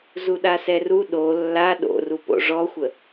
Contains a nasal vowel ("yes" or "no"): no